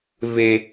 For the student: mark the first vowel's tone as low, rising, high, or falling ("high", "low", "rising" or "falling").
high